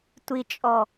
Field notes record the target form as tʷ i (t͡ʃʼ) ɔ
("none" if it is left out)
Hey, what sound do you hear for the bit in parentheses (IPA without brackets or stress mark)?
t͡ʃʼ